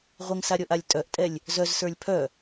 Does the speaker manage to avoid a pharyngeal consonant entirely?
yes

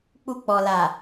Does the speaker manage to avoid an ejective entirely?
yes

